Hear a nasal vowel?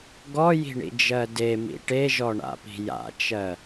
no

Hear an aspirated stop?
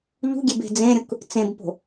no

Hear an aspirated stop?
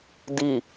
no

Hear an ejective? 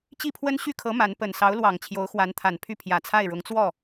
no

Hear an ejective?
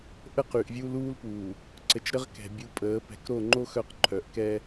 yes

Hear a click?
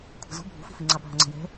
yes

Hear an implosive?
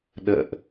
yes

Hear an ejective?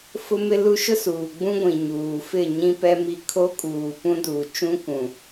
yes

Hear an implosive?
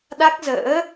yes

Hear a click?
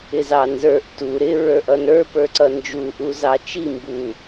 yes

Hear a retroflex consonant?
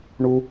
yes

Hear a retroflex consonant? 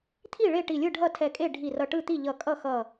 yes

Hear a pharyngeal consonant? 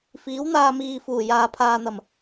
no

